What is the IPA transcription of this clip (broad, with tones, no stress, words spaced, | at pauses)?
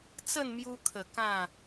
t͡sə˥˧nmju˧kʰə˨˩ kã˥˧